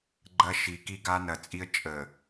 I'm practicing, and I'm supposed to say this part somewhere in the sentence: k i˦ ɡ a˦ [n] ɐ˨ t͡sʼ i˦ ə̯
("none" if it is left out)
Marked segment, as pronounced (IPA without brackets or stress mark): n